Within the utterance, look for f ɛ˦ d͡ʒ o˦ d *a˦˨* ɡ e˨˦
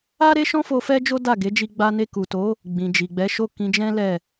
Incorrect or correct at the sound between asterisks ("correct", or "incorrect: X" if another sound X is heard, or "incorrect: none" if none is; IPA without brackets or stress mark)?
correct